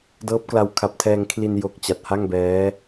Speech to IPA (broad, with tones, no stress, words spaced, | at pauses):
dɤː˦˥p̚kla˧w kʰa˨˩p̚tʰɛː˧ŋ kʰli˧n jo˨˩k̚ t͡ɕa˨˩t̚ha˥˩ŋbɛː˦˥